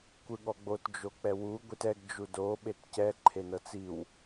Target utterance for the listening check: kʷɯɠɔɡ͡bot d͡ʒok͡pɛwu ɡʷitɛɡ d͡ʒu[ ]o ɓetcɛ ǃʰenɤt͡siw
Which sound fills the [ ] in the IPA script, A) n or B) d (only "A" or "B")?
B